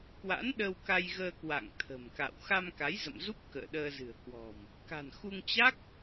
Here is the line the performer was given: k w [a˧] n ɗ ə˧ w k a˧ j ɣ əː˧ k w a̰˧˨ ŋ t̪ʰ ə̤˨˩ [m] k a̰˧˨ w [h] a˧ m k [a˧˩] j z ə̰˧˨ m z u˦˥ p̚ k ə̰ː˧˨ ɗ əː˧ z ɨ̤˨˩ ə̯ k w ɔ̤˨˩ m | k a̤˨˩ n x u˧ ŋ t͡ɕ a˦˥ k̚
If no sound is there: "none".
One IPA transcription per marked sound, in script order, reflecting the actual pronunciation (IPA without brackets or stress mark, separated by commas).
a̰˧˥, m, x, a˨˦